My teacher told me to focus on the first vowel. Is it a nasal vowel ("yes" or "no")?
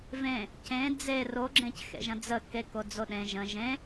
yes